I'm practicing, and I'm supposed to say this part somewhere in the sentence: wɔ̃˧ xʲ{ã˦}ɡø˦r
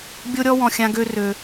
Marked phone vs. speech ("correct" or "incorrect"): correct